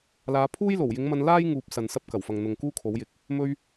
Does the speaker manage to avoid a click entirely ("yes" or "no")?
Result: yes